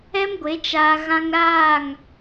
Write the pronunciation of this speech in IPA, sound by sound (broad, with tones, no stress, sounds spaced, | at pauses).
ɛ˦ m ɡʷ e˨˦ t͡ʃ aː˦ ɣ ã˦ ŋ ɾ aː˦˨ ŋ